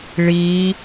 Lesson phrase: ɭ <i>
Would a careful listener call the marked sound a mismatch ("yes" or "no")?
no